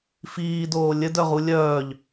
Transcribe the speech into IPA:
f iː d oː lʲ ɘ d œ ʁ u lʲ œː ʎ

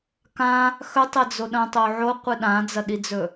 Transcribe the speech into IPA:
k ã | x ɵ tˤ e d͡z o ɗ ɐ̃ tˤ o ʕ o qʷ ɨ ɗ ã d͡z ɐ ɗ i d͡z ɵ

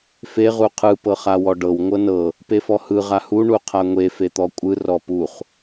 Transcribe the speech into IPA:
f e ʁ u qʰ ɯ p ɤ χ a w ɔ ɖ ɤ w ŋʷ ɤ n ɤ | p e f ɔ h ɯ ʁ a h u ɳ u qʰ a ŋʷ e f e t̪ ɔ kʷʼ ɯ r ɔ p u χ

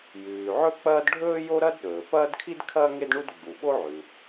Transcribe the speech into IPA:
j ʉː˩ ʕ ɵ˥ k͡p ɐː˥ d ɖʱ ɵː˥ j o˥ ɾ ɐ˥ d ɗ ɵː˩ p ɐː˥ d kʰ i˥ d kʰ ɐː˥ ŋ e˥ d ɳ u˥ d ɡ͡b u˩ ɓ o˥ ʕ ʉ˩

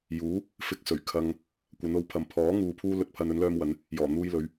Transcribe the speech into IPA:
j uː˨˥ | f ɪ˧ k̚ s ɵ˨˩ ɥ kʰ ɐ˨ ŋ | kʷ ɐ˨˧ n o˨˥ w pʰ ɐ˨ m pʰ ɔː˨˥ ŋ uː˨ pʰ uː˧ l ɵ˨ t̚ pʰ ɐ˨ n ɵ˨˥ n l œː˥ m w ɐ˨˥ n | j ɔː˨˩ n̪ uː˧ j l ɵ˨˧ ɥ

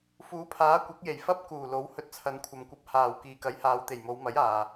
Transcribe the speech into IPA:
f uː˨˥ pʰ aː˨˥ kʷ ɐ˨˥ k̚ j e˨˩ j f ɐ˥ p̚ k uː˨˩ l o˨˥ w h ɵ˧ t̚ t͡sʰ ɐ˨˧ n kʷʰ ɐ˨ m kʷ ɐ˧ p̚ h aː˨˩ w k iː˨ k ɐ˨˥ j h aː˨˧ w t̪ e˨˩ j m o˨˧ w m ɐ˨˥ j aː˨

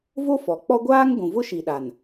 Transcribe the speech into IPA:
v o˦ f ɔ˨ k͡p ɔ˦ ɡʷ aː˦ ŋ ɡʷ ũ˨ v ʊ˦ ʃ i˨ ɗ a˨ n

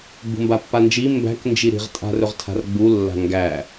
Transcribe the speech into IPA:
ɡ͡b ṳ m b a pː a n d͡ʒ i m b æ̤ k n d͡ʒ i ɾ i̤ ʁ tʼ a̤ r ɵ ʁ tʰ a̤ r ɡ͡b u lː a̤ ŋ ɡ æ

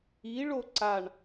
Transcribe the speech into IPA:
i ɭ o ǀ a ɳ

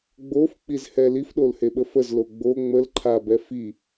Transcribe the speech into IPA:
ɡ͡b o f k͡p i z h ɛ l i f ɗ o l h e ɓ ə f ə z l o ɡ͡b o ŋ͡m ə l ǃʰ a b ɛ f i

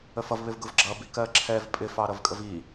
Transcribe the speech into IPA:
ə f ʌ v β ɪ v ɡ ʊ v ɡ͡ǁ ʌ b i k ɜ ǁʰ ɛ v pʼ ɪ f ɑ ɾ ʌ v kʼ ə v i

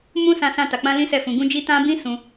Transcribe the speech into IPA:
m ũ˦ s ã˦ s ã˦ t a˧ k͡p ã˦ l ĩ˦ s ɛ˦˨ f ũ˧ ɡ ũ˦ d͡ʒ i˦ t ã˦ b ĩ˦ s ũ˧

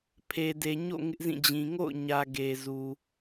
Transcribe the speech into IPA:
pʰ e˨ d e˨ ɲ o̰˦˨ ŋ ɪ˦ ʔ z ĩ˦˨ d͡ʑ ĩ˨ ŋ o̰˦˨ ʊ̯ ɲ ä˨ ɡ e˨ z u˨

